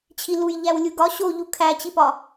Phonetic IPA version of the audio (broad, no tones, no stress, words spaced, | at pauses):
t͡ɕʰiluj ʎæwlʲuɡɒ ɕoʎu kʰæt͡ɕipɒ